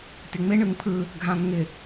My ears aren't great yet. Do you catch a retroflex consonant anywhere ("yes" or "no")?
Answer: yes